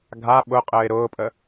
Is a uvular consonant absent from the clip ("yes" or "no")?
no